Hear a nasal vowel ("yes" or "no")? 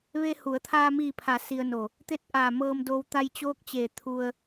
no